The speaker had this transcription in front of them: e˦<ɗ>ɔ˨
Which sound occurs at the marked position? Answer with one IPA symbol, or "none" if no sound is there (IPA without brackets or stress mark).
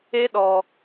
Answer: ɗ